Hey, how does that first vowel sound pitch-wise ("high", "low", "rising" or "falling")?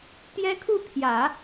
high